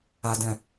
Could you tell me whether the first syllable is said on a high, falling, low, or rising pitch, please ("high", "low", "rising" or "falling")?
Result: low